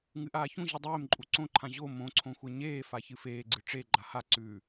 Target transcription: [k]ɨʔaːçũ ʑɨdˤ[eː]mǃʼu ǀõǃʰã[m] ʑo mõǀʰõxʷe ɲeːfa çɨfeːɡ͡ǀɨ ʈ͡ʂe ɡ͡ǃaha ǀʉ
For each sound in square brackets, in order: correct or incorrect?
incorrect: ŋ, correct, incorrect: none

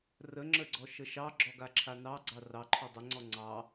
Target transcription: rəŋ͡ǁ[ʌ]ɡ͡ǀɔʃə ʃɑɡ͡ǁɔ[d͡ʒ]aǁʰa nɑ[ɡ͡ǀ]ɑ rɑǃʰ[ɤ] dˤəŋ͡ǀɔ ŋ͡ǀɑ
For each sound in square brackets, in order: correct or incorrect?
incorrect: ə, incorrect: ɡ, correct, incorrect: ɔ

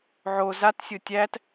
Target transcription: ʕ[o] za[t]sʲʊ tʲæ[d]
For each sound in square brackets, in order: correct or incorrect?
correct, correct, incorrect: t

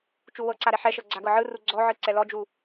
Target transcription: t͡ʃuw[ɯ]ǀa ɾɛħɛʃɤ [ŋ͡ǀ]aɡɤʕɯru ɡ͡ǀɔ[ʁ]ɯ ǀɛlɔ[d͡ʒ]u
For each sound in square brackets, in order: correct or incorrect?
incorrect: ɤ, incorrect: ɡ͡ǀ, incorrect: ʕ, correct

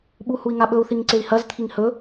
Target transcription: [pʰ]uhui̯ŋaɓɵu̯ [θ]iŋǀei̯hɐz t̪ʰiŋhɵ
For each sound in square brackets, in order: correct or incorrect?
incorrect: ɓ, correct

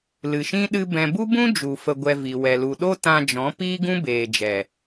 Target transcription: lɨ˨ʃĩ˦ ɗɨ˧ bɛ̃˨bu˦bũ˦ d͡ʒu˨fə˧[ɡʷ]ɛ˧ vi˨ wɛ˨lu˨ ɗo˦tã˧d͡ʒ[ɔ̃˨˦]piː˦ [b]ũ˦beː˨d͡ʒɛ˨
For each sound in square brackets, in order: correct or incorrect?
correct, correct, incorrect: ɡ

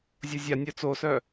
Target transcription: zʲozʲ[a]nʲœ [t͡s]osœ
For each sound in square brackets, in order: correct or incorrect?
correct, correct

